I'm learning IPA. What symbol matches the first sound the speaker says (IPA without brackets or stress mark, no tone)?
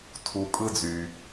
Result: tʰ